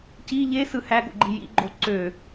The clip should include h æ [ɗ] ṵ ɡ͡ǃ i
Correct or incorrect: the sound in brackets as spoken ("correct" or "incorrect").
incorrect